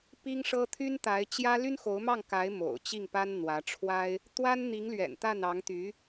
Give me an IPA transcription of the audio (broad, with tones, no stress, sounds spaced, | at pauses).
p i˥ ŋ ʂ ɤ˥ t̪ʰ y˥ n t̪ a˧˥ ɪ̯ t͡ɕ j ä˥ l y˥ n x o˧˥ ʊ̯ m ɑ˥˩ ŋ k a˧˥ ɪ̯ m o̰˨˩ ʊ̯ t͡ɕ i˥˩ ŋ p a˥ n n̪ w ä˧˥ ʈ͡ʂʰ w a˥ ɪ̯ | t̪ w a˥ n n̪ i˧˥ ŋ l ɥ ɛ̰˨˩ n t̪ a˥˩ n ɑ˧˥ ŋ t̪ y˧˥